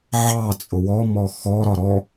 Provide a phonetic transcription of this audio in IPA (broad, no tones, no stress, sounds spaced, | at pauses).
ʕ ɑ t͡sʼ ʊ w ɔ m ɔ x ɔ ɾ ɒ ɾ ɔ